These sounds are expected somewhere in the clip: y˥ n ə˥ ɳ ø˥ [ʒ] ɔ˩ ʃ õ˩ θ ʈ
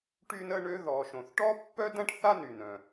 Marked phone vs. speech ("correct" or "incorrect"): incorrect